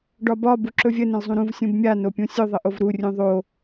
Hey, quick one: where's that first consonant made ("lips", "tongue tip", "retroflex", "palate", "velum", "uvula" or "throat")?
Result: retroflex